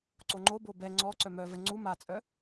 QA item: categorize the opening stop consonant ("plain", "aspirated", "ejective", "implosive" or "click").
click